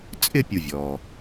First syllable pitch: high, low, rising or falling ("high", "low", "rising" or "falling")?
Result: falling